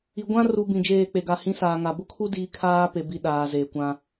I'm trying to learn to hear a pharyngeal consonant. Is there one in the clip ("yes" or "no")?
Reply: no